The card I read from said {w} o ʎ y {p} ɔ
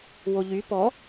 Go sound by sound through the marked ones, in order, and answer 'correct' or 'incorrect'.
correct, correct

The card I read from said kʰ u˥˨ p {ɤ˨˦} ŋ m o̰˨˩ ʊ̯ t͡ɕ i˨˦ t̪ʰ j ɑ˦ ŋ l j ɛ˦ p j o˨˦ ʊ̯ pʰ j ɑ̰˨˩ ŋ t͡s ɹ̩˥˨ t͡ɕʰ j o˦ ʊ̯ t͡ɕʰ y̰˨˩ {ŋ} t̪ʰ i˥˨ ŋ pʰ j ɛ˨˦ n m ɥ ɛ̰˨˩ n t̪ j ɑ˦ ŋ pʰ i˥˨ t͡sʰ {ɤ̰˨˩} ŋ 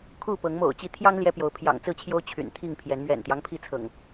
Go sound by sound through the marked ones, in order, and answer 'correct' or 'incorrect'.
correct, incorrect: n, correct

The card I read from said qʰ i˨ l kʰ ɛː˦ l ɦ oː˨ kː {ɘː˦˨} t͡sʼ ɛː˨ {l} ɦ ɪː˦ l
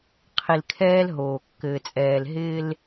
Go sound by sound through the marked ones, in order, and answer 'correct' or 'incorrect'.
incorrect: ɘː˨, correct

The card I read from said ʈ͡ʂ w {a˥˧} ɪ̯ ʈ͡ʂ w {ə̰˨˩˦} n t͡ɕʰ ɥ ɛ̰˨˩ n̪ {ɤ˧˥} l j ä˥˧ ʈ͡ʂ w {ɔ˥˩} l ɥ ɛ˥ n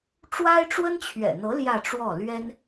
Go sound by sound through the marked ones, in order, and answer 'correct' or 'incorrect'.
incorrect: a˥, incorrect: ə˥, correct, correct

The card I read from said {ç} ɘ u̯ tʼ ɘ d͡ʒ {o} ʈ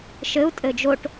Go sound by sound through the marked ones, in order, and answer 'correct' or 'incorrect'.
incorrect: ʃ, correct

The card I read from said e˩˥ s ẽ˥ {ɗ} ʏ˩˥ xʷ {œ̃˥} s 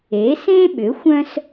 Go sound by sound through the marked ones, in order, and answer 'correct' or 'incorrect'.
incorrect: ɓ, correct

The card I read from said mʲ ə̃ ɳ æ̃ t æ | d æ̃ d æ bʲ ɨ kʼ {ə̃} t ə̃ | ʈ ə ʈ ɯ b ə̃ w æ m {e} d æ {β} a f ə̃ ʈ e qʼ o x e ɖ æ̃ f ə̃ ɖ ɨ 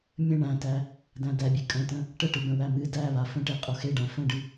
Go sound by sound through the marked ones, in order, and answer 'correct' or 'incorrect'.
correct, incorrect: ɨ, correct

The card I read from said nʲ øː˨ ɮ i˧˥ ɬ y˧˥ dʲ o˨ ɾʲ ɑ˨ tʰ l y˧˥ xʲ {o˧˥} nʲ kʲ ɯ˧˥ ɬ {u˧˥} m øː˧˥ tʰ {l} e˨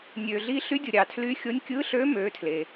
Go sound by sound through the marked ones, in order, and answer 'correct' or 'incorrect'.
correct, incorrect: ø˧˥, correct

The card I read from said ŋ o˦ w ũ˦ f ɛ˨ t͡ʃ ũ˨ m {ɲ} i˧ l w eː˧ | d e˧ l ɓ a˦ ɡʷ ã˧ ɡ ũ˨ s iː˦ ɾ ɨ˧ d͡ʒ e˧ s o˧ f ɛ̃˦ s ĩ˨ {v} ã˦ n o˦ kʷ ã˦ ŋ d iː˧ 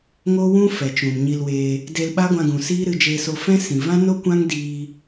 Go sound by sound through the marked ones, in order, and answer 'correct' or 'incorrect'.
correct, correct

